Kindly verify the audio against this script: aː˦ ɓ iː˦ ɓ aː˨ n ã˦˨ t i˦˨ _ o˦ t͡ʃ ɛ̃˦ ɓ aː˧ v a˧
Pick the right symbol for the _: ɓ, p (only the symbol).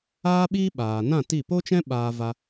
p